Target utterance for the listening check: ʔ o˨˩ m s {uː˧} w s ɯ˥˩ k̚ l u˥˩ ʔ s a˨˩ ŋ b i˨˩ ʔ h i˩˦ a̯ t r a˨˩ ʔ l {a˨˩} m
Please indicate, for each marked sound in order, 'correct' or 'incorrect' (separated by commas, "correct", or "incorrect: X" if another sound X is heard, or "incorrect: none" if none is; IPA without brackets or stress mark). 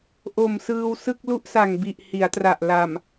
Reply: incorrect: ɯː˧, correct